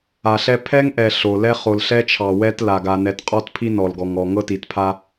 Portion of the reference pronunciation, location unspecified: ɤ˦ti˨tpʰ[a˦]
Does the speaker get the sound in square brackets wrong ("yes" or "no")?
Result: no